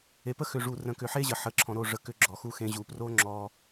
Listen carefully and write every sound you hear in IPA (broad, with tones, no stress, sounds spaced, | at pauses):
e˨ p ə˦ x ʏ˨ ʐ u˨ r ə̃˨ k ʏ˨ ħ e˦ ʑ ə˨ ħ ə˨ ǁʰ ɔ̃˨ ɾ o˦˨ ʐ ə˨ k ʏ˦ ɡ͡ǁ ɔ˨ x u˦ x ẽ˦ ʑ u˨ p r o˦ ŋ͡ǁ ɔ˦